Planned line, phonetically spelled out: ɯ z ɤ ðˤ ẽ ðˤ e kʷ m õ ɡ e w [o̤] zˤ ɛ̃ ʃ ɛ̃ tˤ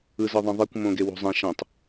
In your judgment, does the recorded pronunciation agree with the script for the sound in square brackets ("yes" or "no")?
yes